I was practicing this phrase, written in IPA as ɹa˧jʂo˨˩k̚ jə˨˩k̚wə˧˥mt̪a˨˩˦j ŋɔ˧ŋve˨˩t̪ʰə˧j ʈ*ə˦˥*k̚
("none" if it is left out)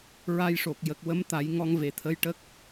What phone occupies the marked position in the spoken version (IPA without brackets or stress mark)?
ə˦˥